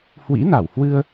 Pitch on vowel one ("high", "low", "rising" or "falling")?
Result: rising